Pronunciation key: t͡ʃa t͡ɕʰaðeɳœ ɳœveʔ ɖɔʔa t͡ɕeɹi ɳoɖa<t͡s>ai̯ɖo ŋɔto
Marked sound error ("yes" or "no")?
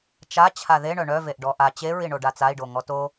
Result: no